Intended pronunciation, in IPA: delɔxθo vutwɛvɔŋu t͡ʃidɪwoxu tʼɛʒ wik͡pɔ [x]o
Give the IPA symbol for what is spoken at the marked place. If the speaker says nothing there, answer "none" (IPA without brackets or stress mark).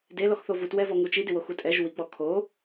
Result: kʰ